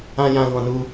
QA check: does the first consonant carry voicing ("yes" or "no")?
yes